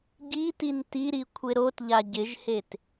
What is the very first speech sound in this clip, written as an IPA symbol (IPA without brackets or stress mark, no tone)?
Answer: ɟ